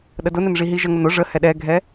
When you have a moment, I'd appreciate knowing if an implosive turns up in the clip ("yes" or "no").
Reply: yes